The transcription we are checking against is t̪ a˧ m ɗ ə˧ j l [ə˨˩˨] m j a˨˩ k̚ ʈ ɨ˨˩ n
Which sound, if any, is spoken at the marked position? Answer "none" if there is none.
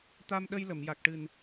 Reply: ə˨˩˨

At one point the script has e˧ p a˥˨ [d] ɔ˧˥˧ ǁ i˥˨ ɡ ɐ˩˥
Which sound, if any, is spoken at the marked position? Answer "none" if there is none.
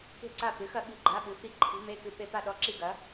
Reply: ɗ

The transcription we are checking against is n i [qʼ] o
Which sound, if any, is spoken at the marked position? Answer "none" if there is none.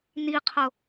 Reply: qʰ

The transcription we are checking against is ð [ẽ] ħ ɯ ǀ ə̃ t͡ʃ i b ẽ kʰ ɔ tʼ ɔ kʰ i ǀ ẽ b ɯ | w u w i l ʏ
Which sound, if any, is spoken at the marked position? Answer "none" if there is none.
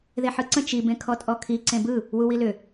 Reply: e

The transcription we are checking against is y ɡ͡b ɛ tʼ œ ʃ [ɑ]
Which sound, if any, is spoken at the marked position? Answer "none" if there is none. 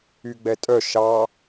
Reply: ɑ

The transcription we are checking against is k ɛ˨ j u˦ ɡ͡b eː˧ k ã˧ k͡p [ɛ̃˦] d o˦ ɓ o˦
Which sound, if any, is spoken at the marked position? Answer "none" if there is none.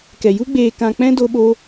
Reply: ɛ̃˦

